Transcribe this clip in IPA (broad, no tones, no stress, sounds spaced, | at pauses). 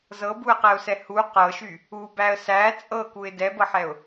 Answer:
z ɤ b u ə̯ q ɛ ʊ̯ s ɛ h u q ɤ ʃ y | u b æ ə̯ s æ t͡sʼ ɤ k u ɪ̯ d ɛ b ɤ ħ ɛ ʊ̯